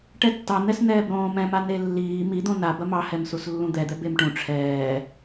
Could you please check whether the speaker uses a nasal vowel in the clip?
yes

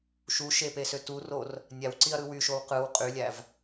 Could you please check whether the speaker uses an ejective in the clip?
yes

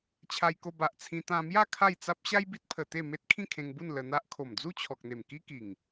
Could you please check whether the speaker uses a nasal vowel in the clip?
yes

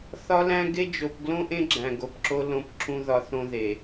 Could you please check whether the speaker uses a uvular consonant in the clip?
no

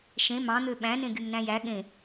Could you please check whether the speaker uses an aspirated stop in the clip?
no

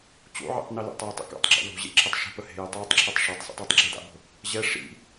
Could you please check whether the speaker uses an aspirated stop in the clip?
yes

